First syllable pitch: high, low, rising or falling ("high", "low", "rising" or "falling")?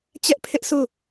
high